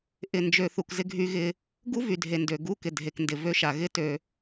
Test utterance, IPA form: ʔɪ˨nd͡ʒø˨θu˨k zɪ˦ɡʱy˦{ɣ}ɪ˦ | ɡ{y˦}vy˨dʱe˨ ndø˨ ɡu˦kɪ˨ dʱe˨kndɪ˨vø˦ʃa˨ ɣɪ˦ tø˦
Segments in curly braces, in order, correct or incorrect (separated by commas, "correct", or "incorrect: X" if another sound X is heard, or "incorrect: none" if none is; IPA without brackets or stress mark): correct, incorrect: u˦